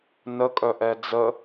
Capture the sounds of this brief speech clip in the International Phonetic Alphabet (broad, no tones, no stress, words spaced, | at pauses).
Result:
nəkʼœʔɛ d͡zə